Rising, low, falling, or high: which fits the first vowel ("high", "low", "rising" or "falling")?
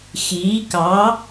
rising